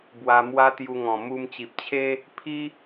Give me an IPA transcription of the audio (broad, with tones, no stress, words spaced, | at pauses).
bwa˧mwa˦t̪ju˧ŋɔ̃˨˩ mu˧mt͡ɕi˨p̚t͡ɕʰe˦ | pʰi˦